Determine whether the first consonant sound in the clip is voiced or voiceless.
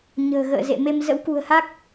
voiced